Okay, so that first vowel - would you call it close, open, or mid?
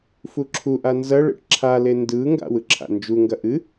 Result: close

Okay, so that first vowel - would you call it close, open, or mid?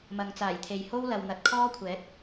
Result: open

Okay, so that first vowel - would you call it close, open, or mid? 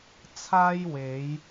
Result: open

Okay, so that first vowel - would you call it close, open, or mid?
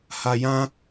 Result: open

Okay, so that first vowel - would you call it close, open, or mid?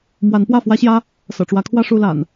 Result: open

